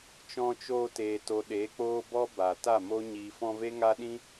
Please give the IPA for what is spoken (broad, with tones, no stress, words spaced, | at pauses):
t͡ʃɔ̃˧t͡ʃoː˧teː˨to˨ ɗe˨˦k͡poː˦bɔ˦ ba˨ ta˦˨mo˦ ɲiː˨fɔ̃˧ve˦ ŋa˦ɗĩ˦